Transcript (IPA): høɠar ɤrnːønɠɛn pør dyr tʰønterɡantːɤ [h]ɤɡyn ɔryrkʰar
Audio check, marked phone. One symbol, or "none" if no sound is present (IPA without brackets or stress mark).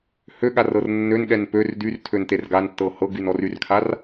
h